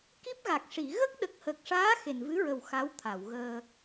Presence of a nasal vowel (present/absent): absent